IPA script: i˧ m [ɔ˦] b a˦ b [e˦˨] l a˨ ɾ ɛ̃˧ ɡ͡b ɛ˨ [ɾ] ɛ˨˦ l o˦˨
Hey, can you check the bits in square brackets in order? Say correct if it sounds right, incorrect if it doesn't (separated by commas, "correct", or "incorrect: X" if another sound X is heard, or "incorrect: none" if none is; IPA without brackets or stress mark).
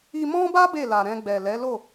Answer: incorrect: ɔ̃˦, correct, incorrect: l